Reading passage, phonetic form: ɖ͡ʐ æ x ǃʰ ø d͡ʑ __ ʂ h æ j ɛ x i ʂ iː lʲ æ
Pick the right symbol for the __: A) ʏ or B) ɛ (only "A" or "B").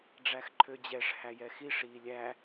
B